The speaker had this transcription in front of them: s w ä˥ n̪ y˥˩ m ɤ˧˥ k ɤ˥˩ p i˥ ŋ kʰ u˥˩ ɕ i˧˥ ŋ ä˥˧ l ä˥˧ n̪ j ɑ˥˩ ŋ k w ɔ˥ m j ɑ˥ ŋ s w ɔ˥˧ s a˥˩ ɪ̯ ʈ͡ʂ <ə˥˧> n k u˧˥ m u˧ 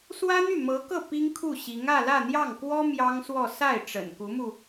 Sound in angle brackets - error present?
yes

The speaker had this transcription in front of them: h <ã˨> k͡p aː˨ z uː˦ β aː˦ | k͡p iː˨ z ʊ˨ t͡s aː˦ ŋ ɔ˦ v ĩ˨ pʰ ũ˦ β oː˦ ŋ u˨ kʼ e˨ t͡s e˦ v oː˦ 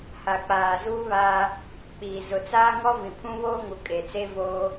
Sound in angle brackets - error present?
yes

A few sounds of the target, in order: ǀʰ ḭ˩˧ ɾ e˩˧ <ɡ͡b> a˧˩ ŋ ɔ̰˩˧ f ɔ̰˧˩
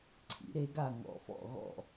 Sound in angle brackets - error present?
yes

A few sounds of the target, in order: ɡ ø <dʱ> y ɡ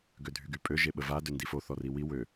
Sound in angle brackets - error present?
no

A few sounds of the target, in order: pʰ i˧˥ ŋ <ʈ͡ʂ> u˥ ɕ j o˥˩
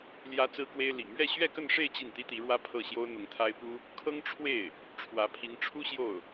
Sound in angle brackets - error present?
yes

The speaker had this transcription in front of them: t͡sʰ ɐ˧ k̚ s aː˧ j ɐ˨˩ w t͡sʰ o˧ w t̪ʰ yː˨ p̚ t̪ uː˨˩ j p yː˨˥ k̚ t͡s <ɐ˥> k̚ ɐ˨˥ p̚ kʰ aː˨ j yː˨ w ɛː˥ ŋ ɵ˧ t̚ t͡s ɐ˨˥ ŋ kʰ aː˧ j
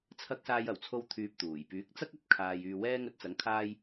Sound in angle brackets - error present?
no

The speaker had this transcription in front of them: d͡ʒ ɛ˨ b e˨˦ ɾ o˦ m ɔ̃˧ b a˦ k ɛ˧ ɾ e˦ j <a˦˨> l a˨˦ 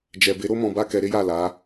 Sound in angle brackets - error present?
no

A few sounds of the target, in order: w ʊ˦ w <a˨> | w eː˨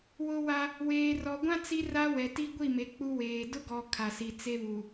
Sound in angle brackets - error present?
yes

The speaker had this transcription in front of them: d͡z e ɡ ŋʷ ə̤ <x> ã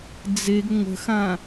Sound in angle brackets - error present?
no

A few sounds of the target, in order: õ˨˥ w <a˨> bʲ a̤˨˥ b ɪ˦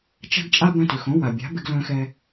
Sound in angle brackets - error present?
no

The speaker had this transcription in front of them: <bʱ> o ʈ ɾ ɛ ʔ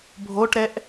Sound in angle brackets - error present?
no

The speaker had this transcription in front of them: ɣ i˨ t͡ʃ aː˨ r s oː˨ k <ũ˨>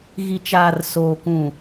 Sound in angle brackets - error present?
no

